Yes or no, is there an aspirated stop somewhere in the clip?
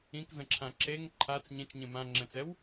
yes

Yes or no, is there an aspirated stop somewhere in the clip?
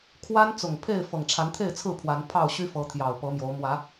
yes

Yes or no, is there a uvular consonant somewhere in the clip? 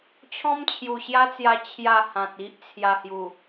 no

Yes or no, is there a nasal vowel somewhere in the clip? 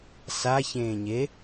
yes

